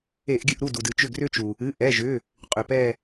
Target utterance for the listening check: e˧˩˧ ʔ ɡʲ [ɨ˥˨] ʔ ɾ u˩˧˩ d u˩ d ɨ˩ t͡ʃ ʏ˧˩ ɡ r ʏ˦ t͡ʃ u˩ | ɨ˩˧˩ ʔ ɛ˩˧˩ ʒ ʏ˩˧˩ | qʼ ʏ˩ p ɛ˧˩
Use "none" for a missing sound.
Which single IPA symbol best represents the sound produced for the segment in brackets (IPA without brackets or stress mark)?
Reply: ɨ˥˨